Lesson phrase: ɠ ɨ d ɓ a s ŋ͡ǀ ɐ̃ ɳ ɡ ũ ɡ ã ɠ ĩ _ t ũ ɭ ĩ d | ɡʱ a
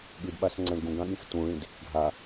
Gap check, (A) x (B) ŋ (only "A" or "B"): A